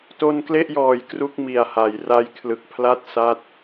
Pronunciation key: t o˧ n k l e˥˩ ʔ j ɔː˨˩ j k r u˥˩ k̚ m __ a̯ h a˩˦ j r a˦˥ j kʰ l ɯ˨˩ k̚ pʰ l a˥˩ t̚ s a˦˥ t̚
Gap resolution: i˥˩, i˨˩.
i˨˩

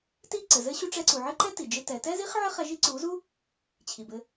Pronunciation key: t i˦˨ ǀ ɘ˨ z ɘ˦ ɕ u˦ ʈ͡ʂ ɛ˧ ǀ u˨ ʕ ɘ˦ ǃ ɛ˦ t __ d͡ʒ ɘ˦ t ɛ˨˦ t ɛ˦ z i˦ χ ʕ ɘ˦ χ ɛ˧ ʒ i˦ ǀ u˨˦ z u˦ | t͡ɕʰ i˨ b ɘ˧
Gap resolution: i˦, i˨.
i˨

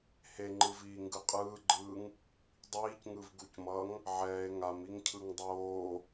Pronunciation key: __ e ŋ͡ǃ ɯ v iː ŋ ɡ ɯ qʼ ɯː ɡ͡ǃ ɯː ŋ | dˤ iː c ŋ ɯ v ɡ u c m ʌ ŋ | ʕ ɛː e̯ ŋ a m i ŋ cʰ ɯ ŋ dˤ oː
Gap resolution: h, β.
h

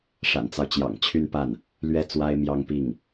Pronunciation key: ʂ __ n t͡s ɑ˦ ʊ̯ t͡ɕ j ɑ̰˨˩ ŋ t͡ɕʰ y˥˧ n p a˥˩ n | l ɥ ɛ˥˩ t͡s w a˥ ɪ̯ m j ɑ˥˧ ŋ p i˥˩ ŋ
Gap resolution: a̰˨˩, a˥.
a̰˨˩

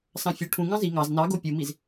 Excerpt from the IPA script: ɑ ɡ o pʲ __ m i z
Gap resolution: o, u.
u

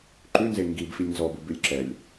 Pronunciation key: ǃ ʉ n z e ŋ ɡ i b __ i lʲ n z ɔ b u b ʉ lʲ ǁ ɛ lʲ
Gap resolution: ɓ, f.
f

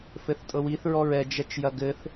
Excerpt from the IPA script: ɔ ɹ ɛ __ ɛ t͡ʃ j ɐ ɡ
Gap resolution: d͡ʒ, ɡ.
d͡ʒ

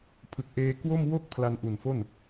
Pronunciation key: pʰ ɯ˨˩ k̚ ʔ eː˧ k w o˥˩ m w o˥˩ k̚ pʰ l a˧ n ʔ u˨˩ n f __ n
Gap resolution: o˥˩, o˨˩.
o˥˩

